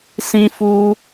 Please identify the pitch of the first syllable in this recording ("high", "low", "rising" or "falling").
high